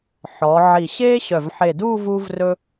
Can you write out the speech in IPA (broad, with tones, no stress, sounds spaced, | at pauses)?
ħ ɔ˩˧ ʕ i˧˩ ɕ eː˥ ɕ œ˧˩ v ħ e˧˩ d uː˥˧ v uː˧ v r ɵ˧